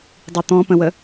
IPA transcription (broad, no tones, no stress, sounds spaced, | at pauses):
dˤ i t̪ ɔ̃ p ə̃ w ə